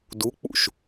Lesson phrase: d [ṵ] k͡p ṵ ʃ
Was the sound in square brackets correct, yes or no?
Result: no